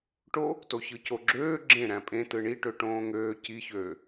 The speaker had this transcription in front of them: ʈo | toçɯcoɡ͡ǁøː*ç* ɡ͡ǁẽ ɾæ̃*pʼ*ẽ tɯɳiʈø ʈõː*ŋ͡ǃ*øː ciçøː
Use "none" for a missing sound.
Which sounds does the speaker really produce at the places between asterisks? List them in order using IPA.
none, pʼ, ŋ

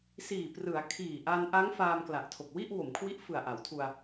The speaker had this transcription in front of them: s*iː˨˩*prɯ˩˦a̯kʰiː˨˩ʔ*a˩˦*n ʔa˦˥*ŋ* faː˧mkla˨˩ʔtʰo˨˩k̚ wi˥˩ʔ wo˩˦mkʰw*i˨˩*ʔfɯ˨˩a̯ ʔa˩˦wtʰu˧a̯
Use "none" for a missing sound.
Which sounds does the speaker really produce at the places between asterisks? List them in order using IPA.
iː˨˩, a˧, ŋ, i˦˥

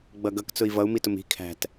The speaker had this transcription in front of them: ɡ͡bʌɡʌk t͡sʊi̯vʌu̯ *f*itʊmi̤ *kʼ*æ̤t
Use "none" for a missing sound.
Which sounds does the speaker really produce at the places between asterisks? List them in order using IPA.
m, kʰ

